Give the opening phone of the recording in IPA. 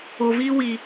o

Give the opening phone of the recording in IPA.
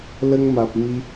l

